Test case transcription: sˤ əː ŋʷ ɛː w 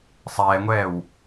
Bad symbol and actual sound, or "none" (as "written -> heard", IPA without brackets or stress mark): əː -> ɛː